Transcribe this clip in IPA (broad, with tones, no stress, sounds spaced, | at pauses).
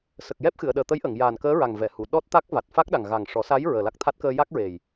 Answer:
s ə˨˩ k̚ j ɛ˦˥ p̚ x ɨ˨˩˨ ə̯ ɗ əː˨˩ t̪ ə˧˥ j ʔ ə˨˩˨ ŋ j aː˨˩ n k əː˧˥ ɹ a˨˩ ŋ v ɛ˨˩˨ h u˨˩˨ ɗ ɔ˦˥ t̚ t̪ a˦˥ k̚ v a˨˩ t̚ f a˦˥ k̚ ɗ a˨˩ ŋ ɣ a˨˩ ŋ ʂ ɔ˨˩˦ s a˧˥ j ɹ əː˨˩ l a˦˥ k̚ t̪ʰ a˦˥ t̚ k əː˧ j a˦˥ k̚ ɹ e˨˩ j